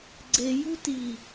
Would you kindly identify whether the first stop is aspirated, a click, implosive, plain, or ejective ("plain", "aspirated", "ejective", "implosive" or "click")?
click